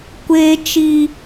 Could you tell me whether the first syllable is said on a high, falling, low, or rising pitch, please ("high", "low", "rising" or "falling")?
high